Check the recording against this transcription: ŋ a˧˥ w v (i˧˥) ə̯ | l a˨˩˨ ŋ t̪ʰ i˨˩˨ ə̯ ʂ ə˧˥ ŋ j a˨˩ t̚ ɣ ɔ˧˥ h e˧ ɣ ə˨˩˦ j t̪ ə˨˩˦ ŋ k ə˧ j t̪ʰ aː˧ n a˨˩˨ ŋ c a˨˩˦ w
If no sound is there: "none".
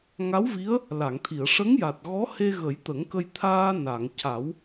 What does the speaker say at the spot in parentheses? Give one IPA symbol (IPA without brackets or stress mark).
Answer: i˧˥